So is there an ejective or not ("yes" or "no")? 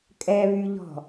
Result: yes